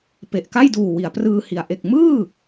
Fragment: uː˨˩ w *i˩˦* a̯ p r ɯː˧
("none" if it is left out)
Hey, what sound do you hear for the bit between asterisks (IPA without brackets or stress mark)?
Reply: i˩˦